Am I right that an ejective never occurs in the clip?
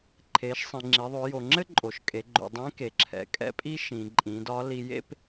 no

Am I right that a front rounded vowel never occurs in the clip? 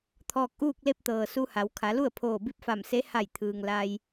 yes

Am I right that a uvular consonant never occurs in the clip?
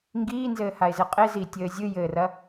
no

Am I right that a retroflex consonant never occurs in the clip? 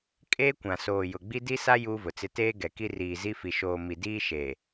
yes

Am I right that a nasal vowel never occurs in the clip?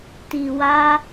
yes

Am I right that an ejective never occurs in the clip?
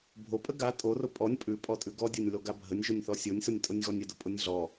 no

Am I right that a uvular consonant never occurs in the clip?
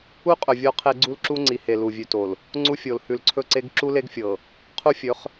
no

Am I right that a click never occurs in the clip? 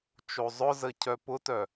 yes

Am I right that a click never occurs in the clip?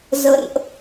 yes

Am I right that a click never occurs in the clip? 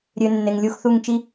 yes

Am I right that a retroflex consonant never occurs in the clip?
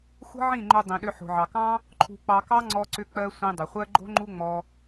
yes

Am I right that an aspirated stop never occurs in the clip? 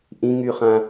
yes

